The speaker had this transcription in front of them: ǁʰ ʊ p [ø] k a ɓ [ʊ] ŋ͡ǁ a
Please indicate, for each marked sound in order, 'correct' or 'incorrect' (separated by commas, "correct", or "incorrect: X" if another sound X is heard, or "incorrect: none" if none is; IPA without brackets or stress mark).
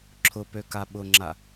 correct, correct